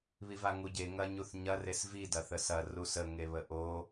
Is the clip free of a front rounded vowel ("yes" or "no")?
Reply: yes